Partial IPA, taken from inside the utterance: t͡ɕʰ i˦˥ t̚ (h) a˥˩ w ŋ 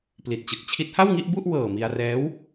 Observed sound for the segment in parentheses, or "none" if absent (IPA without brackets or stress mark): h